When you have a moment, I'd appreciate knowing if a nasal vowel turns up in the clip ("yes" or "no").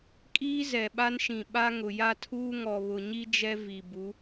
yes